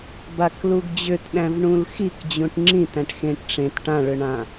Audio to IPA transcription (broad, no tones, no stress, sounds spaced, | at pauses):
b a k l u ɡ d͡ʑ ʏ t ɗ æ̃ v ɳ ũ l x i k d͡ʑ ũ ʈ ŋ͡ǁ ĩ t æ̃ ʈ x ẽ ʈ ʈ͡ʂ ẽ t ʈ ã ɭ ʏ ɳ ã